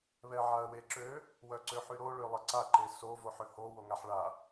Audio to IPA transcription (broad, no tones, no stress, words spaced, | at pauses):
βɛʕaə̯weǁø | wœǀøħyɾo ɭølˠəǀa ǃeso voħøho woŋaħɭa